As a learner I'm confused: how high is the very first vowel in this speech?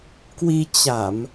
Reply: high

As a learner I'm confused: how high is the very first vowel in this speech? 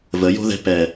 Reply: mid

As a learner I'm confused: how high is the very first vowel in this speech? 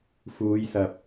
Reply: high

